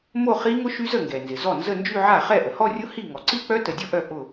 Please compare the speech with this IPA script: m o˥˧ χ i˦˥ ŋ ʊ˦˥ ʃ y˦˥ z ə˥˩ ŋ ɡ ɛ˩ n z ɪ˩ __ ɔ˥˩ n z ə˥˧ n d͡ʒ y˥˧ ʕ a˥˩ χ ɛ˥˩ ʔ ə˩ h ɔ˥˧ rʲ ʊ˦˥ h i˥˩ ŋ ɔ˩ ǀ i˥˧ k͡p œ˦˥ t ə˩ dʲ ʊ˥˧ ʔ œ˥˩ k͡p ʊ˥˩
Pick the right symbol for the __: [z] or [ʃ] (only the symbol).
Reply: z